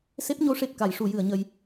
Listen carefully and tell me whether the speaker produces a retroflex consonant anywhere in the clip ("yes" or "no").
yes